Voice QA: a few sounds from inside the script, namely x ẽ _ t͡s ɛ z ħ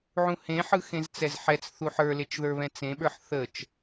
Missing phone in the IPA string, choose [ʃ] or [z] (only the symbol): z